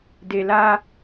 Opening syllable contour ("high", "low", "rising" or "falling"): low